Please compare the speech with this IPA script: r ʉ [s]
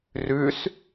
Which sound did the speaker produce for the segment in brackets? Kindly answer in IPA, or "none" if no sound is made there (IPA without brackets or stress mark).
s